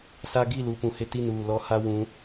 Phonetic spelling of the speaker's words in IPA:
sa˦ ɡi˦˨lu˨pũ˨ hɪ˦ti˦˨nuː˦˨ lɔ˦ha˦ wũ˨˦

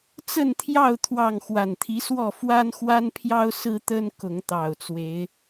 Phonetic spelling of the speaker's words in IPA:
t͡sə˥˨nt̪ʰjɑ˥˨ʊ̯ t̪ʰwɑ˥˨ŋ xwa˨˩nt̪ʰi˨˦swɔ˥˨ fwa˦nxwa˦npʰjɑ˦ʊ̯ sɹ̩˦t̪ə˦n kʊ˨˦ŋt̪ɑ˨˩ʊ̯t͡swe˨˦ɪ̯

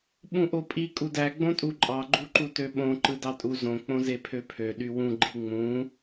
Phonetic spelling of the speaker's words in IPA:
ɓũʔopʼi kʼudæɡ͡bõtʼu ǃʼɑɡ͡ǃuǃutø ɓõ ǃɯdɑtʼu zõ k͡põzepʰøpʰø ɗywũ ɡ͡ǃiŋ͡mũ

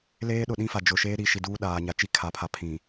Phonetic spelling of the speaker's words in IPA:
leː˦ɗʊ˨ɗĩ˦fa˨ d͡ʒʊ˨ʃeː˦ ɾi˨ʃi˨duː˦ ɗaː˨ɲa˨t͡ʃi˦ kʰa˨pʰa˨ pʰĩ˨

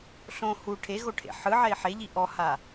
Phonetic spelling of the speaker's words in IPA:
ɬõ hu ʈʰeɣoʈʰḛ ħɯʕɛi̯ ħeʎi ʔɔha

